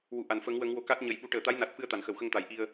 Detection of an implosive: present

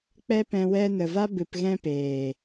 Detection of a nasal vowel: present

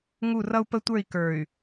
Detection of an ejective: absent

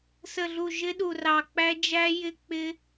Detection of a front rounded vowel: absent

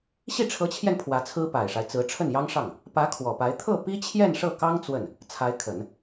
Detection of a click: absent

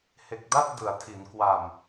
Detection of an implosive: absent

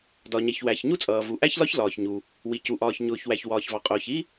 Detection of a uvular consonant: present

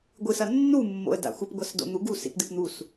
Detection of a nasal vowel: absent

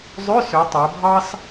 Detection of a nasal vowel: absent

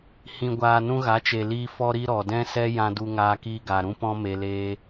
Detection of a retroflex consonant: absent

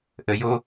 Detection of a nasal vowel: absent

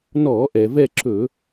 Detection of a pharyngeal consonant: absent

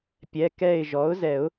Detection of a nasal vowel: absent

